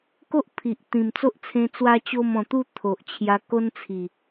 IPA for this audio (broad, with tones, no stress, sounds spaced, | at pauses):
k o˦ ʔ pʰ i˨ ʔ t̪ ĩ˨˩ m t͡s o˦ ʔ t͡sʰ ẽ˧ t͡s w a˦ t͡ɕ o˥˧ m ɔ̃˨˩ t̪ u˥˧ t̪ʰ o˨ ʔ t͡ɕʰ j a˧ k o˦ n t͡sʰ i˨˩